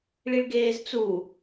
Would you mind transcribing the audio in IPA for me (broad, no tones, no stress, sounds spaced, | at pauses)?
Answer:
ɭ i ɭ ɡ eː z t͡s u